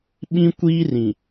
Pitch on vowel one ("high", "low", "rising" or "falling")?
high